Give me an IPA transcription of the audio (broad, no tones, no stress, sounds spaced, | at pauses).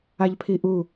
a ʎ pʰ i ʔ u